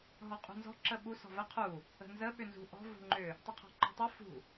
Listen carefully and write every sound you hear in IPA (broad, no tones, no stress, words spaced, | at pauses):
ɦɔqʼṳnzɔ̤ ǁəɓu sɔ̤və qʰu | ə̤nzə ɓʏnzṳ ʔɔ̤ vṳŋ͡ǃʏ | tˤuqʰɔ̤ŋ͡ǃɔ̤tˤu fṳ